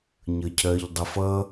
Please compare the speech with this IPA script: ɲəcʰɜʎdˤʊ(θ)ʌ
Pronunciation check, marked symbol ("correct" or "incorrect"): incorrect